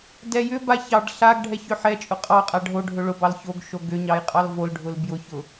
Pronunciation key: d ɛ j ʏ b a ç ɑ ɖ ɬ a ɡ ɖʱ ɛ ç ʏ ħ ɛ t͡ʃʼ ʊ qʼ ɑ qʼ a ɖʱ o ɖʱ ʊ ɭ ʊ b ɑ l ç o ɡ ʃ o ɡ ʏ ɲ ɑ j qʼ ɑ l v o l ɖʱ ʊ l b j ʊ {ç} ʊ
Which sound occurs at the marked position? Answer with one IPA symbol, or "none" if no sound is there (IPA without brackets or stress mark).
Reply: ç